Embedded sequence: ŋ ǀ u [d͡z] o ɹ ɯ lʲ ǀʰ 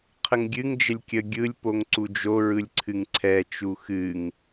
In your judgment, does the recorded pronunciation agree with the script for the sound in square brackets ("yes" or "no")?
no